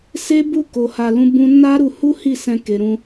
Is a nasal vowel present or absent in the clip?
present